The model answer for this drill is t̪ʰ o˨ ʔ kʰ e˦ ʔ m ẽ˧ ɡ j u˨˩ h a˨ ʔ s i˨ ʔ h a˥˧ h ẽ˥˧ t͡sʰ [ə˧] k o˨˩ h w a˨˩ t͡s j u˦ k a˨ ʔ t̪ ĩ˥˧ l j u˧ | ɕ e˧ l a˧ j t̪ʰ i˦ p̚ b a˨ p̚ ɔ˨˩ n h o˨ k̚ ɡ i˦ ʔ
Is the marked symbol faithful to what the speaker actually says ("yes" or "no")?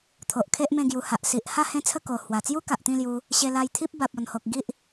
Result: no